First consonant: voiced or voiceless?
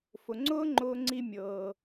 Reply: voiceless